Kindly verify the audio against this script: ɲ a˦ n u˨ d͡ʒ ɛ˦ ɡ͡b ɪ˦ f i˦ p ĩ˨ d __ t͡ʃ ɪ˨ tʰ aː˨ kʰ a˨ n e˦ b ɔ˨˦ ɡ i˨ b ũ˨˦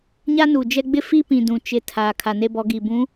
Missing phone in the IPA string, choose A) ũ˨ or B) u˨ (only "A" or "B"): A